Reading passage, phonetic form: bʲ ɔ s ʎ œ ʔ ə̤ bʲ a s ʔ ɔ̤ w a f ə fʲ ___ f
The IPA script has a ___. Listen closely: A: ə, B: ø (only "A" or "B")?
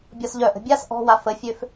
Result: B